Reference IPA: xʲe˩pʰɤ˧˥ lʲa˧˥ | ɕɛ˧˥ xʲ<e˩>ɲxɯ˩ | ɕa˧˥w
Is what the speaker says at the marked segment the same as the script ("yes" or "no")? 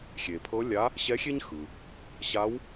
no